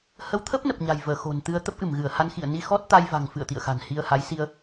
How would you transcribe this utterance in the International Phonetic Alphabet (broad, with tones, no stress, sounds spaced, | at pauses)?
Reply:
h ə˨˦ w t̪ʰ ə˦˥ p̚ n ə˨˩ p̚ ɲ a̤˨˩ j v əː˧˩ x o̤˨˩ n t̪ ɨ˧ ə̯ t̪ ə˦˥ p̚ ʔ ɨ˧˩ m ɣ ɨ˧˩ ə̯ h a˧ n x ḭ˧˨ ə̯ n i˧ x ɔ˦˥ t̚ t̪ a˧ j v a̤˨˩ ŋ f ɨ̰˧˨ ə̯ t̪ ḭ˧˨ ə̯ x a̤˨˩ n h i˧ ə̯ h a˨˦ j s i˧ ə̯